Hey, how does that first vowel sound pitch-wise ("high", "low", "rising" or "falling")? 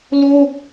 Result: falling